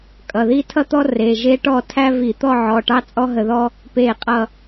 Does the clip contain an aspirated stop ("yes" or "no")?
yes